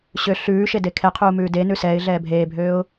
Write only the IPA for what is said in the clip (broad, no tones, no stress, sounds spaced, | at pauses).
ɕ ø ɬ ʉː ʃ e d e kʰ ɛ qʰ uː m ʉː d e n ʉ s ɛː ɪ̯ ɮ ɛː bʱ eː bʱ øː ʊ̯